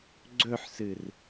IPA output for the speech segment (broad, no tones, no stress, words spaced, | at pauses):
ɡ͡ǀɵħsɨr